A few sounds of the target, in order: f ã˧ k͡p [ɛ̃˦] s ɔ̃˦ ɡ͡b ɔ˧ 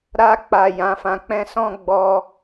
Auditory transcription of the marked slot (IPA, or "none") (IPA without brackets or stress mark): ɛ̃˦